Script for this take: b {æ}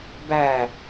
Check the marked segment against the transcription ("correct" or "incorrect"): correct